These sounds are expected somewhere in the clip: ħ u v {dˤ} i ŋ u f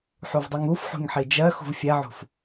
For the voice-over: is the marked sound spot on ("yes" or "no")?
yes